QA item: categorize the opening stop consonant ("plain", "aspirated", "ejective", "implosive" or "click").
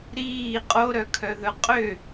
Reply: ejective